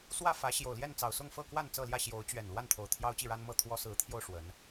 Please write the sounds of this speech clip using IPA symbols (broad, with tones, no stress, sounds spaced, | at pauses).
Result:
s w ä˥˨ f ä˨˦ ɕ j o˨˩ ʊ̯ l j ɛ˥˨ n t͡s ɑ˨˩ ʊ̯ s ʊ˥˨ ŋ f ɤ˥˨ k w a˥˨ n t͡s ɤ˥˨ l j ä˥˨ ɕ j o˨˦ ʊ̯ t͡ɕ ɥ ɛ˨˩ n l w a˥˨ n t̪ʰ o˨˩ ʊ̯ t̪ʰ j ɑ˦ ʊ̯ t͡ɕ i˥˨ ɻ a˦ n m ɤ˥˨ t̪ʰ w ɔ˦ s ɹ̩˨˦ t̪ʰ j o˧ ʊ̯ ʂ w ə˨˦ n